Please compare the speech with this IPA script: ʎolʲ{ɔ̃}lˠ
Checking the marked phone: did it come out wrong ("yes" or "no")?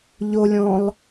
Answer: no